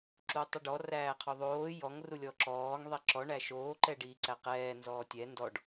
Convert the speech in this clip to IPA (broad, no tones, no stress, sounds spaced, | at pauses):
ǁ u tˤ ə ɖ ɔ r æː qʰ o ðˤ oː j ɔ ŋ r u lʲ ɔ ǁ ɔː ŋ ðˤ i ǁ ɔ ɳ æ ʃ oː ǃ ɛ ɖ iː ǀ æ q ɛː n z ɔː tʲ ɛ n d ɔ ɖ